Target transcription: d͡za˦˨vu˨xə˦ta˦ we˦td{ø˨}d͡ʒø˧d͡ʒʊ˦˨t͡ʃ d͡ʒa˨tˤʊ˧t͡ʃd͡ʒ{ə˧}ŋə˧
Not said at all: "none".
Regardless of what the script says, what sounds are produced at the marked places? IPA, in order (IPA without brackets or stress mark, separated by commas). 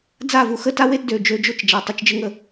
ø˨, ə˦